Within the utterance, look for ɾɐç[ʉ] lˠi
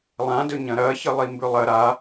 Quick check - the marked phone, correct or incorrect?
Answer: incorrect: ɨ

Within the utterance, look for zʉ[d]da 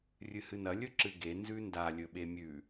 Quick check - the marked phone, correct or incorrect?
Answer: incorrect: n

